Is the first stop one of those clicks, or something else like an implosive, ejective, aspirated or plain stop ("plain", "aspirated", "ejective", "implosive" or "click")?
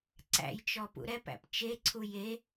click